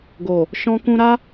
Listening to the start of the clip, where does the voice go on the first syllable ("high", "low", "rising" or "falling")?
low